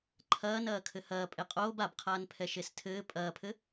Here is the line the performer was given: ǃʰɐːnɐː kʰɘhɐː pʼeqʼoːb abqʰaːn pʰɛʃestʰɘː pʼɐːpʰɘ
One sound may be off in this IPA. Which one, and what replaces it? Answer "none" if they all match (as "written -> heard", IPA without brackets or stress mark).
none